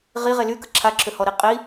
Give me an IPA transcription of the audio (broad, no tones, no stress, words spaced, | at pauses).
ʁiʁe lykə ǁʰaǁʰøhɔɾi qʼi